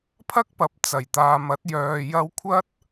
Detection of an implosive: absent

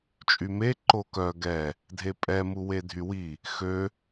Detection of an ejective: present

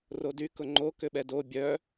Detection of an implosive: present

